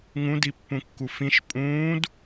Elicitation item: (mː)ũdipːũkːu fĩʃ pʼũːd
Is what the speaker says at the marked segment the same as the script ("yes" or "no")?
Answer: no